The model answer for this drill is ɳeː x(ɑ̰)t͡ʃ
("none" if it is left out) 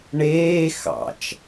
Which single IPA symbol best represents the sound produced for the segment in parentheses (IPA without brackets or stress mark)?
ɑ̰